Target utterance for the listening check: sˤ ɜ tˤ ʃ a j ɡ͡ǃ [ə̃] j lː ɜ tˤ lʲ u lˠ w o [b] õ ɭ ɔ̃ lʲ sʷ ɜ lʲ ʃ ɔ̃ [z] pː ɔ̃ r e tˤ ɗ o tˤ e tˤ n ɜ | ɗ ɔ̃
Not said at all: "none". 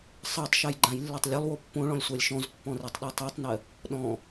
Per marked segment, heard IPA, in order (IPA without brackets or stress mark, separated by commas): ã, pː, z